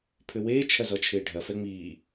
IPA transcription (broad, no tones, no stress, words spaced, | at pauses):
pʰʏweː t͡ʃʰɐzɔt͡ʃʰɪːɖʱɐ fɛŋ͡miː